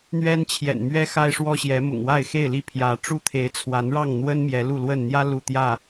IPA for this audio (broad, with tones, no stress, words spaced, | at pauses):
n̪ɥɛ˦nt͡ɕʰjɛ̰˨˩nmɥɛ˦ xa˦ɪ̯ʂwɔ˦ɕjɛ˨˦mʊ̰˨˩ŋ wa˥˨ɪ̯xe˥˨ɪ̯ li˥˨pʰjä˨˦ ʈ͡ʂu˦t̪ʰe˨˦ɪ̯t͡sʰwa˨˦nɻɑ˥˨ŋ n̪wə˦n mjɛ˨˦lu˥˨lwə˥˨n n̪jä˦ lu˥˨ t̪jä˥˨